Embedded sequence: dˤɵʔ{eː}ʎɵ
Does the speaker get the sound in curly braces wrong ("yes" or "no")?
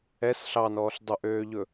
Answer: yes